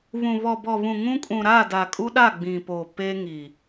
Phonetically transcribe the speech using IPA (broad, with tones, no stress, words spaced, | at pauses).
βũ˨ βɔ˨bɔ˨βũ˨ ŋũ˦kʼũ˨ɾa˦˨ da˨kʼu˦ɗa˦˨ ɡ͡bĩ˨po˨ pe˦ŋi˨